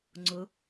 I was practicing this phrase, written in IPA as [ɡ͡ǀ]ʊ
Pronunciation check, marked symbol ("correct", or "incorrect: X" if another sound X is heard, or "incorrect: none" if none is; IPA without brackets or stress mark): incorrect: ŋ͡ǀ